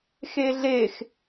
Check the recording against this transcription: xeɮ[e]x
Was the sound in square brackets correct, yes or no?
yes